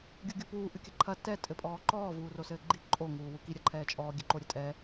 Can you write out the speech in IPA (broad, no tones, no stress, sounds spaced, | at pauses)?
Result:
ɡʲ u ɡʲ u p uː ʔ ɨ kʲ ɐ ǃʰ ɐ t ɛ tʼ ɘ pʼ ɔː ǃ ɔː v uː r o s ɘː ɡ͡ǃ i ǃʼ o ŋ uː w u k i ɾʲ ɐ ǃʰ ɛː t͡ʃʼ ɔː ɡʲ ɘ ǃ o ɾʲ ɘ tʼ ɛ